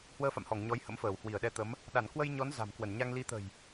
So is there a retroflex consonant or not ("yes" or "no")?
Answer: no